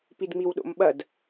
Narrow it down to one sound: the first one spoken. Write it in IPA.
p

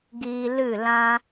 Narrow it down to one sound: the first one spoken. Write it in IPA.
ɡ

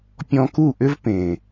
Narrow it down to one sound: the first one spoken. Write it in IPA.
pʲ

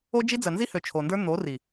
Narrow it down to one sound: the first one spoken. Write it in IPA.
o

